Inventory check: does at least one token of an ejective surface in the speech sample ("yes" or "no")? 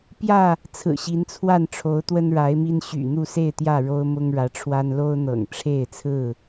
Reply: no